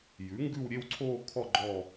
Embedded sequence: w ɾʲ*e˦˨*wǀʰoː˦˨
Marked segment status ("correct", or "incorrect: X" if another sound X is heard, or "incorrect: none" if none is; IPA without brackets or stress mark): correct